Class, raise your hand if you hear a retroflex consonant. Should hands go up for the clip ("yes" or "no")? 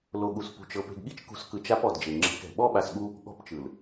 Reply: no